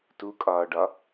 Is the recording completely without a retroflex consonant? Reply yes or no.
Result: no